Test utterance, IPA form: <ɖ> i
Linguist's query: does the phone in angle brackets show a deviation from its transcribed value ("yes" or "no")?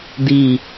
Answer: yes